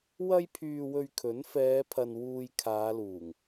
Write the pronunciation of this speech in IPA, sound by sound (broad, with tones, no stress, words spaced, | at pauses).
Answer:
wɐ˥jpʰyː˧wɵ˧ɥkʰɵ˨˥n fɛː˨˧pʰɐ˨n wuː˧jkʰaː˨˧luː˨˩ŋ